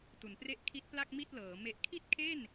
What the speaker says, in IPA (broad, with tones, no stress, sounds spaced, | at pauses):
t u˩˦ n p r e˥˩ ʔ kʰ i˦˥ t̚ p l a˥˩ k̚ m i˥˩ t̚ l ɤː˩˦ m e˨˩ ʔ kʰ i˥˩ t̚ kʰ e˥˩ n